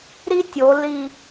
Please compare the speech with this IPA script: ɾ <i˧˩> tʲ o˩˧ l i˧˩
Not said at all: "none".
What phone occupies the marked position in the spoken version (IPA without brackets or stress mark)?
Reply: i˥